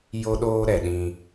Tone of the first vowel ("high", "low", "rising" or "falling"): high